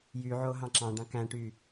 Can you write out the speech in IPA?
jyʕo ɦɑ̃ǁɑ̃ɖɑ̃ kæ̃ʈy

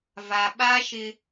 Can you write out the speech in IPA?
va˨ ɓa˦ʃɪ˦

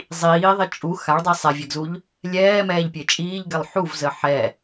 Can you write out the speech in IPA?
zˤiːðˤi t͡ʃʼu xaɭdˤi sˤɛvʲɛɡzuʎ | lʲɛːmɛːʎpʲe t͡ʃʼiːʎɡɛlˠ ħuvzə ħɛ

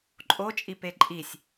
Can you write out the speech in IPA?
ǃʼot͡ʃʼipe ǃʼisʲ

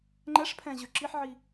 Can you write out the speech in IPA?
ŋ͡ǃɛʂpʰɛ̃ʑø ǁiħʕi

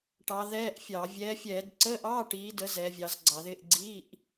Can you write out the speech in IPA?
ʈɑ˨˦ðɛː˧˥˧ʔfʲɑ˧˩˧ vʲɛː˨˦fʲɛː˧˩˧d ǀəː˧˥˧ʔɑː˧˥˧ʈiː˨˦də˨˦ zɛ˨˦vʲɑ˨˦zɡ͡ǀɑ˧˩˧ðɪː˧˥˧ʔ ɡ͡ǀi˧˥˧ʔ

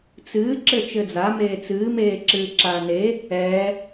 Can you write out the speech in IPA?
t͡sɨː ǁɘt͡ʃɘːd͡za meːt͡sɨː meːǁɨːǁaːne | ɛ

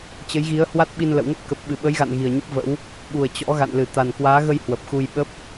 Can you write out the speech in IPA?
t͡ɕə˨˦jɣi˨˦ə̯hwa˦˥t̚ɓi˧n lə̰˧˨wŋə˦˥p̚kə˨˩p̚ ɓɨ˨˩ɓə˨˦jɣa̰˧˨n ɣi˨˩ə̯ɲə˦˥p̚və̰˧˥w | ɓu˨˩ə̯ t͡ɕɔ̰˧˥ɣa̰˧˨n lɨ˧˩ t̪a˨˩nkwaː˨˦ɣə˧j hwə˨˩p̚xu˧j ɓə˦˥p̚

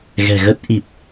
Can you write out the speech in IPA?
ɣɛ̤˨˩ ɣə˦˥t̚ ʔi˨˩p̚

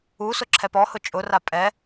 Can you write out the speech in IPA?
u sʊǁʰɛpɔhʊ t͡ʃʼʊra pʼɛ

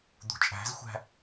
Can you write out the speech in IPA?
d̪ṳt͡ʃʼæ̤zxʷæ̤

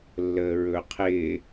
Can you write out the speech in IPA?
lːəːɹɵqʰɪː

